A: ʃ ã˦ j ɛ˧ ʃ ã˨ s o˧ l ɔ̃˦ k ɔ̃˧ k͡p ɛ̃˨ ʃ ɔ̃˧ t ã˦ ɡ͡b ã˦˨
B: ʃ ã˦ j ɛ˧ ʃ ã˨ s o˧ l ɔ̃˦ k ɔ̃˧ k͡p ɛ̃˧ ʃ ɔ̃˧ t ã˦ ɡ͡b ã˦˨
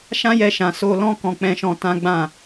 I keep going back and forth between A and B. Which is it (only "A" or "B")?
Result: B